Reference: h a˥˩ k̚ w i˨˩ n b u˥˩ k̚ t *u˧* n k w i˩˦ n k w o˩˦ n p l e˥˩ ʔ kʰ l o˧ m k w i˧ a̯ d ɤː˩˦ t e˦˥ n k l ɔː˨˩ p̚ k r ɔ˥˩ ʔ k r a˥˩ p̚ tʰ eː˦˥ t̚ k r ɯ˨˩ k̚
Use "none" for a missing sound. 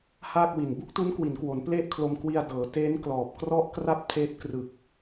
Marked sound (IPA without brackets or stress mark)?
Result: u˦˥